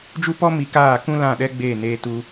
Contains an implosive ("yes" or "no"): yes